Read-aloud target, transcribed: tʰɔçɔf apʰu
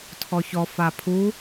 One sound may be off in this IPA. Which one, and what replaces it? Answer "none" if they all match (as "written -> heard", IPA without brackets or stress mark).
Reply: none